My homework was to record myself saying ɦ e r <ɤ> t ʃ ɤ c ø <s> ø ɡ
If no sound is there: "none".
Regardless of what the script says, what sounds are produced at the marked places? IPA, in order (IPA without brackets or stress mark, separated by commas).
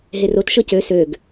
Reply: o, s